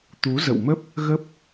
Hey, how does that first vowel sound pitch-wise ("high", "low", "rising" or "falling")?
rising